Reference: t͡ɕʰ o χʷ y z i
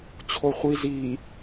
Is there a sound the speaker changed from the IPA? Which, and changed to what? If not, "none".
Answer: y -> i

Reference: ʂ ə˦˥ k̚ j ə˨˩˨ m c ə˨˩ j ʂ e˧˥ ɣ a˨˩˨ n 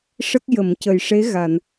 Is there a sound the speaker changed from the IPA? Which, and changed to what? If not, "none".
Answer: none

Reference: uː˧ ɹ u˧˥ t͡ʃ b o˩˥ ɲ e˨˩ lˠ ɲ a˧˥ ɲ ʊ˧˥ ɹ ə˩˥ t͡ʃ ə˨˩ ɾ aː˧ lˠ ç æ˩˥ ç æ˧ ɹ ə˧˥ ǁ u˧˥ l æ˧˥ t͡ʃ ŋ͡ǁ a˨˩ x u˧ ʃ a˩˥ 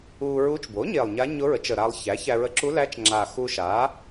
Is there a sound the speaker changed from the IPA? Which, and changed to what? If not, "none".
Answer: none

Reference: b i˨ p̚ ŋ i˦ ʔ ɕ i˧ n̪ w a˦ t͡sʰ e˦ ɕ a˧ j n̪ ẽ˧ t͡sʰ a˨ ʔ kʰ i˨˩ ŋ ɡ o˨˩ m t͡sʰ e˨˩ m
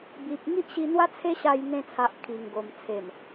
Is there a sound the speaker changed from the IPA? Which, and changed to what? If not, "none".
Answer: none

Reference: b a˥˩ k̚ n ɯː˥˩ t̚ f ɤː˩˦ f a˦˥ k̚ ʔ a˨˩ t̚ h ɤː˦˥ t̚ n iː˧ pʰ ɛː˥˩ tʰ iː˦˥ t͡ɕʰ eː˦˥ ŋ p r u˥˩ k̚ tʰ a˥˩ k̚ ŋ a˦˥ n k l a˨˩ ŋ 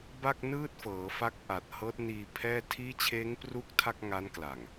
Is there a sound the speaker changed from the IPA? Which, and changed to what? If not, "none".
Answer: none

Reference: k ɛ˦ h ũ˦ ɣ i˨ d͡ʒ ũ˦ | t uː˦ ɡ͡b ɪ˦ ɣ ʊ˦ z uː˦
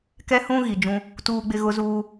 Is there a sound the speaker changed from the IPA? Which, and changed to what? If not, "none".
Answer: none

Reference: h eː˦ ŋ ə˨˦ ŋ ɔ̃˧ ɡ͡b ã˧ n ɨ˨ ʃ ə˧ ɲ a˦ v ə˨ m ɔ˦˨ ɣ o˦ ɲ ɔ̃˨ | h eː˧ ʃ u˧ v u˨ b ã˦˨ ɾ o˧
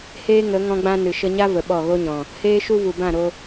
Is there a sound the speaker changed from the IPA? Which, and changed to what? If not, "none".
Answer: m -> ɓ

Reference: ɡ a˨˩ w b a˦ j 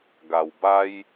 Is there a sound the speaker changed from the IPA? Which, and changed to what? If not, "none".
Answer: none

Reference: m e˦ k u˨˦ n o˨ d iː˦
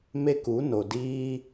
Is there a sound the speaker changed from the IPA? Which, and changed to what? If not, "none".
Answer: none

